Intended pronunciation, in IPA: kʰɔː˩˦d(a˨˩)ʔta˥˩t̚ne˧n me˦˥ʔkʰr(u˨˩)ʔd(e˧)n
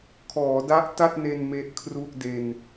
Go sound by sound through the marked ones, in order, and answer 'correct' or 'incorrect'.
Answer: incorrect: a˦˥, incorrect: u˥˩, correct

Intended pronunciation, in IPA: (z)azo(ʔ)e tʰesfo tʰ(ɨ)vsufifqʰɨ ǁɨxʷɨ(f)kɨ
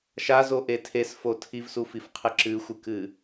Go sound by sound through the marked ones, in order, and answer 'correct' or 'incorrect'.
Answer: incorrect: ʃ, correct, incorrect: i, incorrect: none

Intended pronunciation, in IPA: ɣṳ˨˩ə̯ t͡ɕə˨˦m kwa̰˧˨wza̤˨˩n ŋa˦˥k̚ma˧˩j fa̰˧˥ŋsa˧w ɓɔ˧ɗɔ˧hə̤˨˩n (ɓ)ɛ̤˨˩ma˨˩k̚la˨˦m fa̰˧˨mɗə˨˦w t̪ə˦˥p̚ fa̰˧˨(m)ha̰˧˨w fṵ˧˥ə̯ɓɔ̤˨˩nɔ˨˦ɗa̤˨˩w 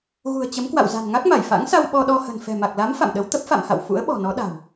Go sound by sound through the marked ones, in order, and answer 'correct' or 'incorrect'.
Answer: incorrect: f, correct

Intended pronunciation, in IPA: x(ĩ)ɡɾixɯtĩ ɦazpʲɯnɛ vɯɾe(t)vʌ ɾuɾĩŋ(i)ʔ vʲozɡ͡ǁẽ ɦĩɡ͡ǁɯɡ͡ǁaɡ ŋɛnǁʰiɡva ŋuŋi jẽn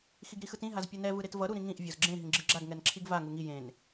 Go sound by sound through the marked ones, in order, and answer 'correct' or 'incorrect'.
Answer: incorrect: i, correct, incorrect: ĩ

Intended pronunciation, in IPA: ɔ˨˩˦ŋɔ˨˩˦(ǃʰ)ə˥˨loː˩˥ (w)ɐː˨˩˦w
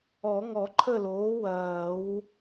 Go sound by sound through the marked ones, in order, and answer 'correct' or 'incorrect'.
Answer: correct, correct

